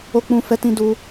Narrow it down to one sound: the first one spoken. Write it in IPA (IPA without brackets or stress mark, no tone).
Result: o